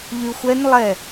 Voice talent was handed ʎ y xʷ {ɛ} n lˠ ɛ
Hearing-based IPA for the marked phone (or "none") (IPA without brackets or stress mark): ɛ